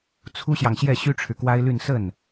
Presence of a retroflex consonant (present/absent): present